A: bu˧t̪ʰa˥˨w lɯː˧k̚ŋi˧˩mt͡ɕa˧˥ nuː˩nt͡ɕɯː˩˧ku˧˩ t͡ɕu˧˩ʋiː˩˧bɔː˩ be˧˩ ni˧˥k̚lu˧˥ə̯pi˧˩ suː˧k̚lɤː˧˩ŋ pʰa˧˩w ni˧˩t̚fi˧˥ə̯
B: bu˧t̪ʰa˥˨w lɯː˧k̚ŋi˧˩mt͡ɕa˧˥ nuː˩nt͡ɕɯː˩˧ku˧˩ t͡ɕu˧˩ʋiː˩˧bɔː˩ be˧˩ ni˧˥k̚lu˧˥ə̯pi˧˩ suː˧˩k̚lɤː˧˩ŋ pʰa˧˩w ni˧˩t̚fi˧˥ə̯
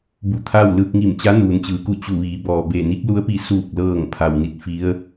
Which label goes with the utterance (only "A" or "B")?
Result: B